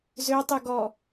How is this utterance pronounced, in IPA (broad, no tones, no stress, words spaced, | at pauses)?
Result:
zøtˤy ɡɔ